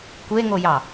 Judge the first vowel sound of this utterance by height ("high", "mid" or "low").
mid